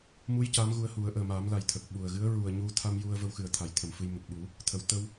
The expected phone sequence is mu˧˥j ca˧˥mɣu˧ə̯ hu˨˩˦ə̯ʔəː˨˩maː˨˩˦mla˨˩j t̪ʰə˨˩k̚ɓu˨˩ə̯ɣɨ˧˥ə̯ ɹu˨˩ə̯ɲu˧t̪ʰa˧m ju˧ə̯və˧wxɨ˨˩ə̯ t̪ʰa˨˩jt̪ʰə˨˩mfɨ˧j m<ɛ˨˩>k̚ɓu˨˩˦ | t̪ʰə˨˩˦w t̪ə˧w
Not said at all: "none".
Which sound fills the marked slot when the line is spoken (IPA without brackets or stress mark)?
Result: ə˨˩